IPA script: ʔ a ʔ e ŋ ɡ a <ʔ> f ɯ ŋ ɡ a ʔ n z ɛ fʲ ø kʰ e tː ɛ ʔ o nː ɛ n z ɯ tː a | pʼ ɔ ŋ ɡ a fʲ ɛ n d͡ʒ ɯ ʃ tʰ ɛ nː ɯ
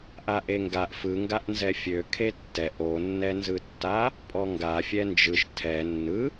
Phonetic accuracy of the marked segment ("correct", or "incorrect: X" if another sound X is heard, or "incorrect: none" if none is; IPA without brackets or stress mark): correct